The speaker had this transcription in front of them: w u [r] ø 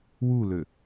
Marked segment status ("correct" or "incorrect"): incorrect